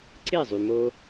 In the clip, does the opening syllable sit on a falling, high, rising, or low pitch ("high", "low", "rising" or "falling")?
falling